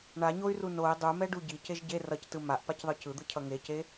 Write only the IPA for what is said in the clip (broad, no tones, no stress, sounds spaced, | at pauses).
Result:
ɳ a ɲ o y̯ r u n o i̯ dˤ u m ɛ ɖ u ɟ i c e ʒ ɟ e r ʌ c t ɯ m a ʔ p a c ðˤ ɯ c ɯ d̪ ɯ cʰ ʌ ŋ e c e